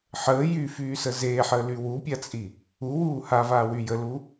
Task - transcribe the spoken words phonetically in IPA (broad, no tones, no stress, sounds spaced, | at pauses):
ħ əː j y f yː s ə z eː ħ əː l y w u pʲ a t͡sʼ i | u w uː h a v aː w y j ə l u